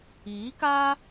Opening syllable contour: rising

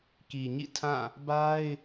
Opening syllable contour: low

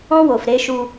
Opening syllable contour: high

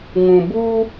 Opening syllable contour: low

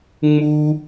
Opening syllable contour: high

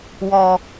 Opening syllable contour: low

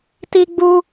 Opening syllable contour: high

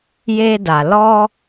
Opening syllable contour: high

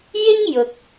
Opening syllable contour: high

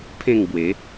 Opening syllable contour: falling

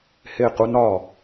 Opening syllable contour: falling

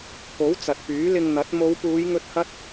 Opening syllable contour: rising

